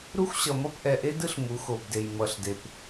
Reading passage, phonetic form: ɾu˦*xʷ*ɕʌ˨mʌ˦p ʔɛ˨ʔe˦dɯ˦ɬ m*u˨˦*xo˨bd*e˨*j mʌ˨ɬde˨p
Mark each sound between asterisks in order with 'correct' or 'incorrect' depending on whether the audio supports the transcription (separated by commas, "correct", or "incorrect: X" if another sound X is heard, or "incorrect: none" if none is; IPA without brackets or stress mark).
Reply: correct, correct, correct